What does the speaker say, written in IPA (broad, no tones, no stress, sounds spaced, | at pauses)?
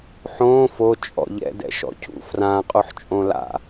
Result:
ħ õː f o t͡ʃʼ ɔ̰ ʎ ɛ̰ d ɛ̰ ʃ ɔ̰ cʰ ṵ f r ãː qʼ o ħ t͡ʃʼ õ l a̰